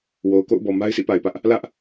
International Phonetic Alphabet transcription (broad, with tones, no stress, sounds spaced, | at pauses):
w o˨ ʊ̯ k o̰˦˨ ʊ̯ b ɔ˨ m a˦ ɪ̯ sʰ ḭ˦˨ p a˨ ɪ̯ p ä˦ ʔ | l ä˦ ʔ